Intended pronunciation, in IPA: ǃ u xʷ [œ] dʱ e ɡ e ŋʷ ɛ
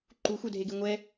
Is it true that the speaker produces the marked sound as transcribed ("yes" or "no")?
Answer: yes